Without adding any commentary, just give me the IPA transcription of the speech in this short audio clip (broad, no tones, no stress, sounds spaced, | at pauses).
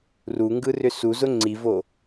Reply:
r u ŋ ɡ ɯ r ʏ s u z ʊ ŋ͡ǀ i v o